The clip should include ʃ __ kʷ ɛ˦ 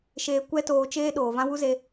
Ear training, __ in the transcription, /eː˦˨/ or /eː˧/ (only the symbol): eː˧